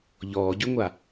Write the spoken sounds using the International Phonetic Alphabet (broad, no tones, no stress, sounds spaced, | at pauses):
ʎ ɔː ɟ y ŋʷ a